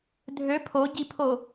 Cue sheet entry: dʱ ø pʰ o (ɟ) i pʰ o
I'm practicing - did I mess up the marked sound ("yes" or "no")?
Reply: no